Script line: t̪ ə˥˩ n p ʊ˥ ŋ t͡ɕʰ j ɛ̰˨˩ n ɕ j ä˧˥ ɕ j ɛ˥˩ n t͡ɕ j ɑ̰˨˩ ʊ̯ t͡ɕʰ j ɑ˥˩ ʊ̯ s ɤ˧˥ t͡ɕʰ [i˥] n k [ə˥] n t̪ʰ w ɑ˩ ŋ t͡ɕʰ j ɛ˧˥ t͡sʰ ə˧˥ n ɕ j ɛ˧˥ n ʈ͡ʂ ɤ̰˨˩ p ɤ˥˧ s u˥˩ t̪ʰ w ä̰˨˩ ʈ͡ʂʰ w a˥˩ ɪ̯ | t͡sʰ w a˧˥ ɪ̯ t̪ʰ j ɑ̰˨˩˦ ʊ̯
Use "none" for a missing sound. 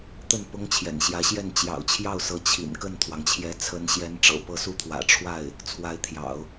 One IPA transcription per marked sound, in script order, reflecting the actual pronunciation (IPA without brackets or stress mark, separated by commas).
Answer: ḭ˨˩, ə˥˩